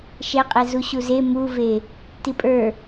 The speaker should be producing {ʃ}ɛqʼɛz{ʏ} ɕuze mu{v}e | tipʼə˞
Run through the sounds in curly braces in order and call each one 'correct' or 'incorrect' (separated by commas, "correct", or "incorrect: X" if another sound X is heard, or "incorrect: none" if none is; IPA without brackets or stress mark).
correct, incorrect: u, correct